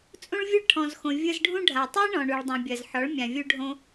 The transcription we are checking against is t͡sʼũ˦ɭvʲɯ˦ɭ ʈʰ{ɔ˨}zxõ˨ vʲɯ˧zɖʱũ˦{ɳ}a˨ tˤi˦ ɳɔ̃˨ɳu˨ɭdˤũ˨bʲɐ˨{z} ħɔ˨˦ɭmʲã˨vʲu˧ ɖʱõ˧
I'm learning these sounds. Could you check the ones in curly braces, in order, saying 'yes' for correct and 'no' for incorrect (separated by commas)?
no, no, yes